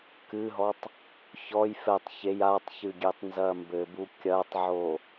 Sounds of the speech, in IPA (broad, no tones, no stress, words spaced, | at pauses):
kɨɦɔtˤ | çɔj fɛtˤ çej atˤçɨɡʲetˤnzɐ mbɘbu kʲɐtˤʕo